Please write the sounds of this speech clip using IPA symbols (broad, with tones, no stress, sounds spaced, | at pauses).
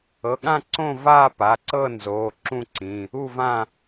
ɤ˩˧˩ ɠ ã˥˨ ǀ õ˥˨ v aː˥˨ p a˩˧˩ ǀ ɤ˥˨ n z oː˩˧˩ ǁ ũ˥˨ ǀ ĩ˩˧˩ | u˥˨ v ã˥˨